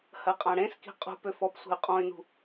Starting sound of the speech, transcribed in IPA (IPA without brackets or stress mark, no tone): h